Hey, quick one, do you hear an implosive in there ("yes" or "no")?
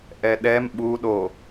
yes